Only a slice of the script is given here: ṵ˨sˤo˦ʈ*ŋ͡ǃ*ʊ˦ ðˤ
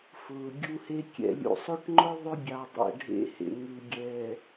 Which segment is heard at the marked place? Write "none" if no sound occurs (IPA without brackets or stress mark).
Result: ŋ͡ǃ